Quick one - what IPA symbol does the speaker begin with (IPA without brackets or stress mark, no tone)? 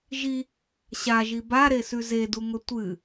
ʒ